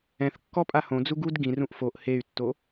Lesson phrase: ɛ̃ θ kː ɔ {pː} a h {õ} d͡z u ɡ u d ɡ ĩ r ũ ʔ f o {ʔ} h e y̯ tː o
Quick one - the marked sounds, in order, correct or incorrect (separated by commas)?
incorrect, correct, correct